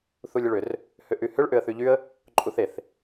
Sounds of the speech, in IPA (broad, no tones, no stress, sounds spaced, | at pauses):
θ u lʲ ʏ ɭ ʏ r | h ʏ ʔ y h ʏ ɭ ʔ ʏ ə̯ θ y ʎ y ə̯ | ǃʼ u θ e θ